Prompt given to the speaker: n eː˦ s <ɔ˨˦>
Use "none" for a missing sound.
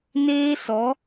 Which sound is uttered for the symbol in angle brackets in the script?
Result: ɔ˨˦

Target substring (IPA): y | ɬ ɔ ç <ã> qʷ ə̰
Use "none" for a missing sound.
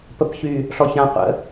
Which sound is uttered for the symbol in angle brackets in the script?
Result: ã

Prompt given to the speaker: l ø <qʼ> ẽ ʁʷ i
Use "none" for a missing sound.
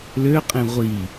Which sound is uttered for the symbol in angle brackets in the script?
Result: qʼ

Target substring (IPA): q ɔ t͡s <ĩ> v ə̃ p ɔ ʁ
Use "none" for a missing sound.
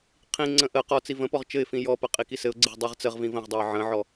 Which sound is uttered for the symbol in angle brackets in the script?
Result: i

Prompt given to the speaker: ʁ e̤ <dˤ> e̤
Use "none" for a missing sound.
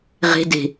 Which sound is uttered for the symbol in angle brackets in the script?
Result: d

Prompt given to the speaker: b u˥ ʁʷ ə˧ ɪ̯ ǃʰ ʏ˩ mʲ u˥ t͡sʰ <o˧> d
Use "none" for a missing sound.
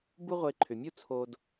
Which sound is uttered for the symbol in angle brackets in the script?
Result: o˧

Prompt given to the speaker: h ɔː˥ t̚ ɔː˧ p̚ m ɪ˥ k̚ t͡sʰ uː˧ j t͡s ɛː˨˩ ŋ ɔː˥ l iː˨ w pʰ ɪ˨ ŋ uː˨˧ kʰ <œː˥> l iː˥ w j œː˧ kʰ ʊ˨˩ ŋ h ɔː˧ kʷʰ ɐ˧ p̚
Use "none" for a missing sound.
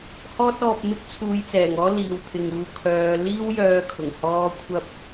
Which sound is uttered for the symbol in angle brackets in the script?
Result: œː˨˧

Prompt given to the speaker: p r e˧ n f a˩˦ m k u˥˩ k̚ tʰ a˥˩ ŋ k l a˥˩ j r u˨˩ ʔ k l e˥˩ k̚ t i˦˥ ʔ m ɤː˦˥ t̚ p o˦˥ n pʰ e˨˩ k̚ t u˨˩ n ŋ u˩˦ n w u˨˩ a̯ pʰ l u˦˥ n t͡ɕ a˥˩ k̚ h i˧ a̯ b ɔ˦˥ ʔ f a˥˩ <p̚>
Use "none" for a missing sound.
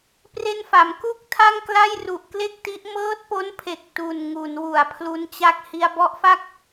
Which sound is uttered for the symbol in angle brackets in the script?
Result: k̚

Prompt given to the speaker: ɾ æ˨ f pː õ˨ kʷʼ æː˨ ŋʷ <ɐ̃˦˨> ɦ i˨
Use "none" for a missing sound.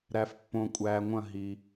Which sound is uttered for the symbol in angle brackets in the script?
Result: ɐ̃˦˨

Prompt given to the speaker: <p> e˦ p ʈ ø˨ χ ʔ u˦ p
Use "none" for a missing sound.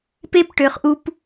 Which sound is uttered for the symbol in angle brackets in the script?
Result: p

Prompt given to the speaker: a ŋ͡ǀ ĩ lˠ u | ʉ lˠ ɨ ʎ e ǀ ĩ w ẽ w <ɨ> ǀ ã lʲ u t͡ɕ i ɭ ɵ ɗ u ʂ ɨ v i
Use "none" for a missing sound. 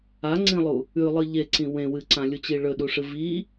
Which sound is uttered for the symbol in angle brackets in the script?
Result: ɨ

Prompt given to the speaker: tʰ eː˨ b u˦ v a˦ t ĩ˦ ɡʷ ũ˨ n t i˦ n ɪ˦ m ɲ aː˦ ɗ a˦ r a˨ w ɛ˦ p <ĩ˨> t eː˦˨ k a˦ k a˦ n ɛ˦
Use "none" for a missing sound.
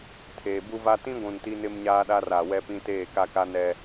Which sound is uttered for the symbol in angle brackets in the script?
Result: ĩ˦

